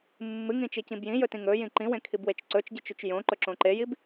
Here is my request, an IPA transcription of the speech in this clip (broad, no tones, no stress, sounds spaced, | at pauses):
mː ɨ ŋ ĩ t͡ʃ i c ĩ b j ĩ j ɵ t ĩ ŋ ɵ j ĩ ǃ ĩ w ẽ kʰ i b w e t͡ʃ ǀ ɵ t͡ʃ ɟ ɨ t͡ʃ ʉ t͡ʃ j õ ǃ ɵ ǁ õ ǃ e j i b